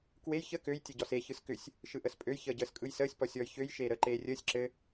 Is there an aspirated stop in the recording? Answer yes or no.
no